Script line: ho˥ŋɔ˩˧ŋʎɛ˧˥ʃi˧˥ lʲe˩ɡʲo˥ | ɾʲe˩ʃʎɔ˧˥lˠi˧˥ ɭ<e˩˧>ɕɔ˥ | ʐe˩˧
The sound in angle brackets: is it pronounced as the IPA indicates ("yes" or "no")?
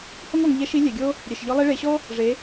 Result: yes